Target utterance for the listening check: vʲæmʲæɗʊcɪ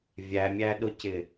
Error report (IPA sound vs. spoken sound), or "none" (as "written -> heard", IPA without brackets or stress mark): none